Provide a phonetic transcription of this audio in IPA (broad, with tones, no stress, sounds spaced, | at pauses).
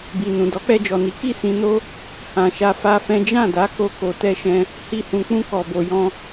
b i˨ n ũ˨ d ɔ˨˦ k͡p ɛ˧ d͡ʒ ɔ˨ n i˨˦ k i˦˨ s ĩ˧ n o˦ | h ã˨ ʃ a˧ f a˦ f ɛ̃˦ d͡ʒ ã˦˨ d a˨˦ k o˧ k o˧ t ɛ˦ ʃ ɛ̃˦ | h i˦ h ũ˧ k͡p ũ˦ k ɔ˧ b o˧ j ɔ̃˦